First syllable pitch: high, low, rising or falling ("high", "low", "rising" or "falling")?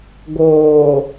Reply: low